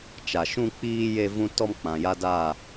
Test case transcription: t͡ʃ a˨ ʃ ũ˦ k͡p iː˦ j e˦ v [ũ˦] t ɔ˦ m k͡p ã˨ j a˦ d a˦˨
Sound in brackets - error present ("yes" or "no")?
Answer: no